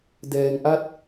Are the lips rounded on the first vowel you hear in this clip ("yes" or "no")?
no